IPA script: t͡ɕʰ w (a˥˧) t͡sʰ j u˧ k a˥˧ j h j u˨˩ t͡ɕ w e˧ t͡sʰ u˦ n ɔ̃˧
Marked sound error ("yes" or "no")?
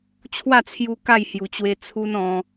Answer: no